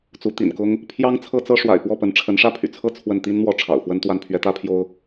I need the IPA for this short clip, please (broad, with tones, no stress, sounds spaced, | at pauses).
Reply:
t͡s u˧˥ t̪ ḭ˨˩ n k ʊ˥ ŋ | pʰ j ɑ˥ ŋ t͡sʰ ɤ˥ t͡s ɤ˥ ʂ w a̰˨˩ ɪ̯ p w ɔ˥˩ p ə˧˥ n ʈ͡ʂʰ ə˧˥ n ʂ ä˥ pʰ y̰˨˩ t͡sʰ ɤ˥˧ t͡sʰ w ə˥˩ n t̪ i˥ n n̪ w ɔ˥˩ ʈ͡ʂʰ ɑ̰˨˩ ʊ̯ f w ə˥ n t̪ w a˥˩ n pʰ ɥ ɛ˧˥ t̪ ä˥ pʰ j o˥ ʊ̯